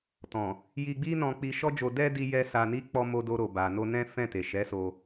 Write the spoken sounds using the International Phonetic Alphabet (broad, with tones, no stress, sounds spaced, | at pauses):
t ɔ̃˨ | j i˧ ɡ͡b i˦ n ɔ̃˧ k͡p i˧ ʃ ɔ˦ d͡ʒ o˧ d ɛ˦ d i˦ j ɛ˦ s a˧ n i˦ k͡p ɔ˦ m o˧ d o˧ ɾ o˨ b a˨ n o˧ n ɛ̃˦ f ɛ̃˦˨ t e˨ ʃ ɛ˨˦ s o˧